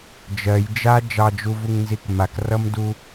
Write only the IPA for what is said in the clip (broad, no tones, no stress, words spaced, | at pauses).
d͡ʒɜj d͡ʒa d͡ʒɑd͡ʒuvuŋnzik makrʌmdu